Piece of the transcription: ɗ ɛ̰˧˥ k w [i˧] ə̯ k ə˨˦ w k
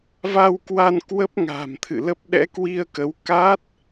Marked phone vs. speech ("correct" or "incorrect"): correct